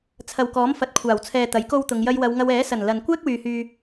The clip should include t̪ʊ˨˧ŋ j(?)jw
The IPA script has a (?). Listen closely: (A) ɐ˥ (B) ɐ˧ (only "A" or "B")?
B